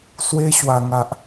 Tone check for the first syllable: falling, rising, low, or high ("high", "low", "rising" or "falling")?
high